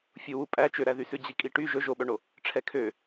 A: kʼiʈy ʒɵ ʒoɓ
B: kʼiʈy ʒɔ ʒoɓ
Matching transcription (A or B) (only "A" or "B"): A